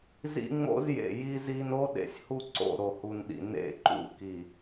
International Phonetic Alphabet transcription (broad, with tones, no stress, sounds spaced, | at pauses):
z ḭ˦ ŋ͡m o̰˦ z j ḛ˨ j i˦ z i˦ n o˦ ɗ ḛ˨ sʲ h u˦ ǀ o̰˦˨ ɾ o˨ h u˨ n ɗ ḭ˨ n ḛ˦˨ ǃ ṵ˦ k i˨